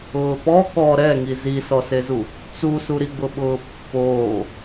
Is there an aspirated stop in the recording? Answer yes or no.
no